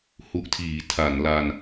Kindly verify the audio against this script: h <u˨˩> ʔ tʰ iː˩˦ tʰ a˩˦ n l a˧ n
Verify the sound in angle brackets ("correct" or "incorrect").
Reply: incorrect